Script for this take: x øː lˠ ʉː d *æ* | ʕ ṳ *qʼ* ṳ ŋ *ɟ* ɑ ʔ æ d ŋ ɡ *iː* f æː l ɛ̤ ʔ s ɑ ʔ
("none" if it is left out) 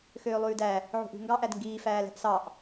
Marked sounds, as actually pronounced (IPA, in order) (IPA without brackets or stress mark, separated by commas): æ, ʔ, ɡ, iː